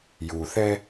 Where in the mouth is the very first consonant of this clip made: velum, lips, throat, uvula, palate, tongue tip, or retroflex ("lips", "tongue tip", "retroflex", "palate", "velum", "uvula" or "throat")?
palate